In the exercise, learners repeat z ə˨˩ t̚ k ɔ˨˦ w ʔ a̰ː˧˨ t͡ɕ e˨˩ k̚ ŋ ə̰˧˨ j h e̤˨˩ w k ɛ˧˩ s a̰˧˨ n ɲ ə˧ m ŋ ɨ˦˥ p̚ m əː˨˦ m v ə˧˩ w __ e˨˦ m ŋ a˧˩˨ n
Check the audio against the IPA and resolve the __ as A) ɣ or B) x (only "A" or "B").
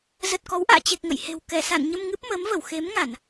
B